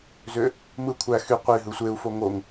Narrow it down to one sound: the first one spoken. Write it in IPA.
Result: z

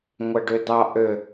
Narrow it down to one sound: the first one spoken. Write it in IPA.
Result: ŋʷ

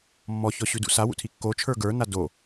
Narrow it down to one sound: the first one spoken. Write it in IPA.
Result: mː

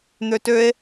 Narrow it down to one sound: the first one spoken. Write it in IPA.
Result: n̪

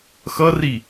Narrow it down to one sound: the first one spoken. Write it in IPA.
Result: x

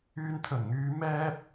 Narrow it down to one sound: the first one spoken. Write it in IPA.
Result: yː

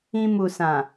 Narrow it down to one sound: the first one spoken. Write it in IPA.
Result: ĩ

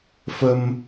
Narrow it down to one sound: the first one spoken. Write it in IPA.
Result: f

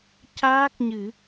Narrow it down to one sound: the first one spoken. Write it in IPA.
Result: c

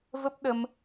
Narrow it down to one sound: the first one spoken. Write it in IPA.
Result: v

